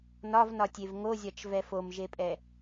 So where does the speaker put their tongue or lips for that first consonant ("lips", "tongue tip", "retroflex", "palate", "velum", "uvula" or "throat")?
tongue tip